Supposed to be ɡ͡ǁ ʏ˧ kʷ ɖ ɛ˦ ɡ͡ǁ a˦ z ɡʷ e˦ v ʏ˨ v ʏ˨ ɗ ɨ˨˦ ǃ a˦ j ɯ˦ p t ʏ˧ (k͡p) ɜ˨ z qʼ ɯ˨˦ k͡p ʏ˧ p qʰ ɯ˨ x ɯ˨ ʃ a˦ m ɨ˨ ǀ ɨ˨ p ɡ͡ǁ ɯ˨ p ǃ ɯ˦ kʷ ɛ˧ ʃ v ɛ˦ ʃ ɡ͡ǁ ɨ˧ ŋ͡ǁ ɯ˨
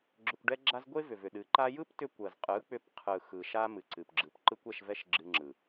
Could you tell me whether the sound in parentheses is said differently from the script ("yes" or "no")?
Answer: yes